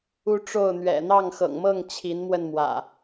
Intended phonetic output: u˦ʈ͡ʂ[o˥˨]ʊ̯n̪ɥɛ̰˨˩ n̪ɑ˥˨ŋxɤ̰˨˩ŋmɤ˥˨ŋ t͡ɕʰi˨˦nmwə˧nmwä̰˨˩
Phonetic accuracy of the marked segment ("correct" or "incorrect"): correct